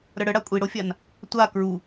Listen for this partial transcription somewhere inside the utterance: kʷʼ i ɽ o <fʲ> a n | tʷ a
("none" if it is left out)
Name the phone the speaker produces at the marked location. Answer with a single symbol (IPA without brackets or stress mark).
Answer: fʲ